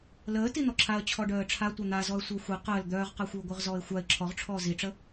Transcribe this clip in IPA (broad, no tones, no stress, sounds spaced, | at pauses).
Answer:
l əː t i n̪ ɔ ǁʰ a ə̯ t͡ɕʰ ɔ ɖ œː ə̯ ʈ͡ʂʰ a tʷ œ n̪ a z ɔ ə̯ sʷ əː xʷ i q əː l d̪ œː ʁ q a xʷ i ʊ̯ ɡʷ œ ʁ z ɔː ɪ̯ xʷ a ɪ̯ ǁʰ ɔ ʁ ʈ͡ʂʰ ɔː z i ʈ͡ʂ ə